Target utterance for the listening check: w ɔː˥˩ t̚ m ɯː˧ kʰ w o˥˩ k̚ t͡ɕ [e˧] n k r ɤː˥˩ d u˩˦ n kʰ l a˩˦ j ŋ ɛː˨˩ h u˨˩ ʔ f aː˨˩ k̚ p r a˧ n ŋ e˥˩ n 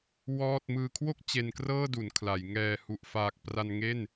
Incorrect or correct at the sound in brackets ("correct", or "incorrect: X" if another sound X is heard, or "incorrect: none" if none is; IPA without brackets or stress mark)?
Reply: correct